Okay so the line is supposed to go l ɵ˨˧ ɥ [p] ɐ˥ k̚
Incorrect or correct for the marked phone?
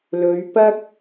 correct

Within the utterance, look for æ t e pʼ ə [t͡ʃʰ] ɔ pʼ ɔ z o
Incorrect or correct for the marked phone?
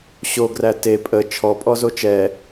correct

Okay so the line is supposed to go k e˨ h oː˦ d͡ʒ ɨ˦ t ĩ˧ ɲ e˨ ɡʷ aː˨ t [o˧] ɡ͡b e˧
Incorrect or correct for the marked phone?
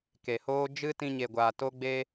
correct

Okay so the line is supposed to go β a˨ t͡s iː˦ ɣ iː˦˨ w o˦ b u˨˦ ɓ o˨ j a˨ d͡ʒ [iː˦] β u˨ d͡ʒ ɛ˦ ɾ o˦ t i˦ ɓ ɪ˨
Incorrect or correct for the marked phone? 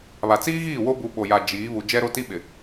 incorrect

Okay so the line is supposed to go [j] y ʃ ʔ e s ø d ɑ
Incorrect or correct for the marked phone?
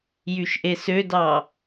correct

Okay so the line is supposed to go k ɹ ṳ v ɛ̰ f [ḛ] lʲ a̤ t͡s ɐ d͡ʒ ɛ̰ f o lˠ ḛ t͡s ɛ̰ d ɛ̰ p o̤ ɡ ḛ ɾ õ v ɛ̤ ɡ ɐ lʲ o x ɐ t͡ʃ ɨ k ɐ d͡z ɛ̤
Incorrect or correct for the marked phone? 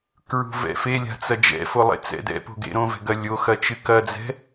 incorrect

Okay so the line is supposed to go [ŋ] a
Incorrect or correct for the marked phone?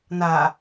incorrect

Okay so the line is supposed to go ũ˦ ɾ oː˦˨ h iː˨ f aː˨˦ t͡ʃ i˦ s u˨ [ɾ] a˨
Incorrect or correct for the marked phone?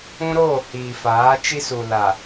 incorrect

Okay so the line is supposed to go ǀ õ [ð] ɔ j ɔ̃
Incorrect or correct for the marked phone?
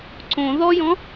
correct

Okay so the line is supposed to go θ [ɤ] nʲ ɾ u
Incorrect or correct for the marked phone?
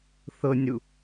correct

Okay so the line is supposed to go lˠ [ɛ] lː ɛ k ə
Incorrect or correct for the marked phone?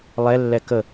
correct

